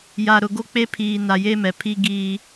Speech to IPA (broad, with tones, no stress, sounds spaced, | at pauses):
j a˨ ɾ ʊ˨ ɡ o˦ k͡p e˦ pʰ iː˨ n a˨ j e˦ m ɛ˨ pʰ i˦ ɡ iː˦